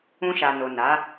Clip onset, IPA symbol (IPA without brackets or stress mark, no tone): ũ